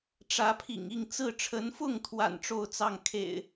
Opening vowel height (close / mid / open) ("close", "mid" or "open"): open